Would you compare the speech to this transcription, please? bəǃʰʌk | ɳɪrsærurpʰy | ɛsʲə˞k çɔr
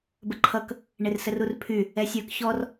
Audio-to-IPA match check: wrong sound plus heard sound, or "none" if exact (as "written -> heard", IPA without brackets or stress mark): æ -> ə